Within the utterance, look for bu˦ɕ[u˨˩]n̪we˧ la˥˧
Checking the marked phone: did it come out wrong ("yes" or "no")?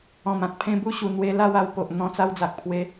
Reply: no